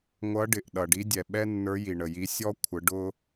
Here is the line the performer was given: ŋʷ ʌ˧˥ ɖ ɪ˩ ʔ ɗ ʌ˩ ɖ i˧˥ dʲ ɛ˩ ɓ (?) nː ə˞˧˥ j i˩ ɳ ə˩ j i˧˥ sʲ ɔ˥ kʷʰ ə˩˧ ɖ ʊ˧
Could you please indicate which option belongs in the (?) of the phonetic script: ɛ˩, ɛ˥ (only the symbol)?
ɛ˥